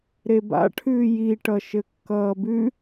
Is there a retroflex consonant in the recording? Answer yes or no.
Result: yes